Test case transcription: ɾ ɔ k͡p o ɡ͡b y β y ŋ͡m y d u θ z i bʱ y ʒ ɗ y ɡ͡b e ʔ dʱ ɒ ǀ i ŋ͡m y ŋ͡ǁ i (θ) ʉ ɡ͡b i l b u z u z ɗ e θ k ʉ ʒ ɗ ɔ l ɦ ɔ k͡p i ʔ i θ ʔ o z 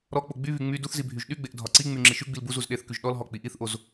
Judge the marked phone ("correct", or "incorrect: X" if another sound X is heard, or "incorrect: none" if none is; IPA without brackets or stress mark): incorrect: ʃ